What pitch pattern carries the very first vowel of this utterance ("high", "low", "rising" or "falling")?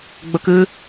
high